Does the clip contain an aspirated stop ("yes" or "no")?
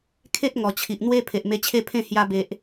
yes